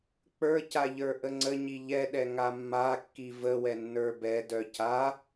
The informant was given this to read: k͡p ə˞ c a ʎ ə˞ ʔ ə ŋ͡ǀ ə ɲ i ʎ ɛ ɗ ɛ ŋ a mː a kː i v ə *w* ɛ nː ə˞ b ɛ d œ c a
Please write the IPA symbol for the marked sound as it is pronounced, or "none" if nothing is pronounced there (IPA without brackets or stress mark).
w